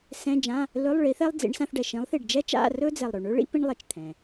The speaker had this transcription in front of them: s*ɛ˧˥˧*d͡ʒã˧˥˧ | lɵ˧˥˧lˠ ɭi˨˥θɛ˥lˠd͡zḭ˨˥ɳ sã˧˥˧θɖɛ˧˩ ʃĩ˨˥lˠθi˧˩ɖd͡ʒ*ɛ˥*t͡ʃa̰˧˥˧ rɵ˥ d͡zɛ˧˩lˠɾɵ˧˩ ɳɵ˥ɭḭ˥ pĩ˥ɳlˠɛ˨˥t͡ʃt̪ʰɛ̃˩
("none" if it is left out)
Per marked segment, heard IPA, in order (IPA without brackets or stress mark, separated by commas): ɛ̃˧˥˧, ɛ˥